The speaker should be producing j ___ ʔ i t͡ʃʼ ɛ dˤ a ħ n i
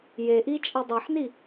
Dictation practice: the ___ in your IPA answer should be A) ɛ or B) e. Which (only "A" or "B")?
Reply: B